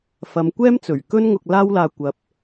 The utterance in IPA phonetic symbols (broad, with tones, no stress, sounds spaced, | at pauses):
f ɐ˨˧ m kʷ ɛː˥ m t͡s ɵ˨˩ ɥ k ɵ˥ n ŋ ʊ˧ k̚ l aː˥ w l aː˧ kʷ ɐ˨˥ p̚